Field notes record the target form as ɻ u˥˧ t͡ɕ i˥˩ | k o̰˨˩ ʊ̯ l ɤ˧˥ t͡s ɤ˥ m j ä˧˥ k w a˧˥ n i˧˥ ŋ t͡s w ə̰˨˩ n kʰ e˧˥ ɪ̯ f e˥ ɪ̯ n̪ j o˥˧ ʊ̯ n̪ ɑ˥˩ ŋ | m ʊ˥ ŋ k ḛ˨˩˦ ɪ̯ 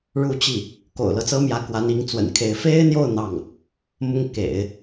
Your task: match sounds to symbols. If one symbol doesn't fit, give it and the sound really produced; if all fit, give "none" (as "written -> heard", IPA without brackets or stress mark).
none